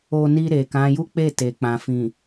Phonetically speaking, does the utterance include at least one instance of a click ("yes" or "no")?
no